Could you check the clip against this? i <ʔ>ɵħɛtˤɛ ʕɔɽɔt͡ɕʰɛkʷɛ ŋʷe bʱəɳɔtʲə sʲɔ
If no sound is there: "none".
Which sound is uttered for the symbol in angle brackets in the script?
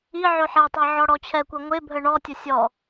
ʕ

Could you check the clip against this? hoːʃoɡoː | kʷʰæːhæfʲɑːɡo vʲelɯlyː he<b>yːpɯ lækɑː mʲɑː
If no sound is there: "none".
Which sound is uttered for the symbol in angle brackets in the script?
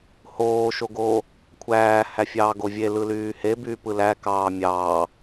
b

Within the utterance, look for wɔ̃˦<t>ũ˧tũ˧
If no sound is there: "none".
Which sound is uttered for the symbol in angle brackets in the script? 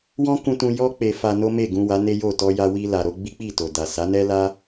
k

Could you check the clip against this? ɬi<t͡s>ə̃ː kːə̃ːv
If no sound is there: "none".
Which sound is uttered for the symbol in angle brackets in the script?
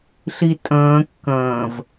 tʼ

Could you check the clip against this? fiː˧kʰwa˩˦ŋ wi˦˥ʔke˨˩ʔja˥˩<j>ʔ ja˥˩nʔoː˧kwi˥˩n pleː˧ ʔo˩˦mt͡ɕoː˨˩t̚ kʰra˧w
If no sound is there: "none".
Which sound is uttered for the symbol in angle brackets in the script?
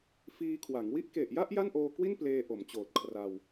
none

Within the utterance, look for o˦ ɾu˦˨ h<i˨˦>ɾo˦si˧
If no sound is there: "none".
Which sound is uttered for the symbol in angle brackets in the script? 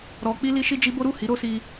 i˨˦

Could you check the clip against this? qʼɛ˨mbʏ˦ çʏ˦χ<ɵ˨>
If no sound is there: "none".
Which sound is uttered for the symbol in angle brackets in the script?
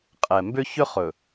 ɵ˨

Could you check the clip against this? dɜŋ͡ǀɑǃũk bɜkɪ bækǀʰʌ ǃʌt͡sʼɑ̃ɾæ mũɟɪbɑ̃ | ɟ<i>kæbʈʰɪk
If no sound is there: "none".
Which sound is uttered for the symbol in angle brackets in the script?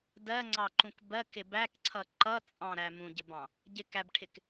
ɪ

